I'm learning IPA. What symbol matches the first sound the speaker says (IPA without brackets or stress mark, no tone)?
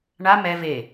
ɳ